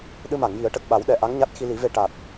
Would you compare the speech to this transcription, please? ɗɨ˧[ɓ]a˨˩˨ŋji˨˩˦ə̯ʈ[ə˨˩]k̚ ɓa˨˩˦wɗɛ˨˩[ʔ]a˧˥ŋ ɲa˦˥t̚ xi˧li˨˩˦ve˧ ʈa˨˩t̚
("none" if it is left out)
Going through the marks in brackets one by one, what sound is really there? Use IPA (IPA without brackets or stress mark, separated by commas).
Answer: m, ə˨˩, ʔ